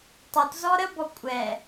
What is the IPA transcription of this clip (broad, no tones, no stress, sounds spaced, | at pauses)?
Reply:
tˤ u t z ɔ ɾ ə b ɔ kʷʼ ɛ